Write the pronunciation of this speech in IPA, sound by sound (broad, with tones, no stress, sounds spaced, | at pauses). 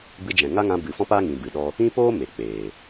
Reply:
b ɨ˧ d͡ʒ ɛ̃˨ ŋ a˦ ŋ ã˧ b ɨ˨ f ɔ̃˦ p a˦ ŋ ĩ˨ b ɨ˨ ɗ ɔ˦ | ĩ˦ p oː˦ m e˨ k͡p eː˨